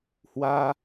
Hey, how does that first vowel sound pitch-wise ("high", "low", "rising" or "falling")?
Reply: high